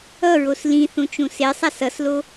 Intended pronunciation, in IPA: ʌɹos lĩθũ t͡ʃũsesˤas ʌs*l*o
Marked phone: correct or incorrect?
correct